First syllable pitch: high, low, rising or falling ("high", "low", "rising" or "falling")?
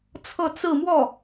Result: falling